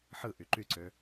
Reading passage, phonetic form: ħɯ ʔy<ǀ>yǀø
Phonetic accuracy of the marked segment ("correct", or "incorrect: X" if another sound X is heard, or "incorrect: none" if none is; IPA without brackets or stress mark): incorrect: ǃ